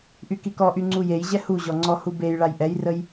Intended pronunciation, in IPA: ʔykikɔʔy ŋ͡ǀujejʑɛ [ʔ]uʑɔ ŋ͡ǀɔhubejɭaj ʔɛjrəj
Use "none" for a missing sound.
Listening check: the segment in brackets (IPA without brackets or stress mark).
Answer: h